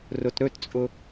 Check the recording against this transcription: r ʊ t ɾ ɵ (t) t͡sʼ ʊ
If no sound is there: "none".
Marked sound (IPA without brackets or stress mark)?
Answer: t